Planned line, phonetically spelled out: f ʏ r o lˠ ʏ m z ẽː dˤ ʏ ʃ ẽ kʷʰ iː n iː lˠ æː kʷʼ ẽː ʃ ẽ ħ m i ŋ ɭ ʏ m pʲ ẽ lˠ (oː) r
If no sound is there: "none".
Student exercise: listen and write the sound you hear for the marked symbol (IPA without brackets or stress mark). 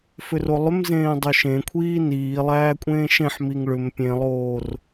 oː